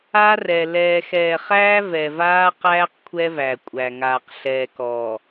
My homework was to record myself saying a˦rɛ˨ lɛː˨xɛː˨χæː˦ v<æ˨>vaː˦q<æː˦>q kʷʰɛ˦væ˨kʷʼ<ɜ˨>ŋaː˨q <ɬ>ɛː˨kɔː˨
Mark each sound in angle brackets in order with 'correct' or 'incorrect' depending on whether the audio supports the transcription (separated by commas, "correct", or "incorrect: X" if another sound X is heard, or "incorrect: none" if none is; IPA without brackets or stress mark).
incorrect: ɛ˨, correct, incorrect: æ˨, correct